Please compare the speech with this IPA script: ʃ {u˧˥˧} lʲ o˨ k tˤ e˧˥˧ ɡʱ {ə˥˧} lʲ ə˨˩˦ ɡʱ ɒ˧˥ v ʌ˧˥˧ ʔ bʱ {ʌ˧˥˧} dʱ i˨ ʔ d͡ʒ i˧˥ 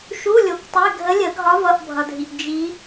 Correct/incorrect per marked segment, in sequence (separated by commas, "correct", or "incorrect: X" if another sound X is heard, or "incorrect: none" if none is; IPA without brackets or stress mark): correct, incorrect: ə˧˥, incorrect: ʌ˨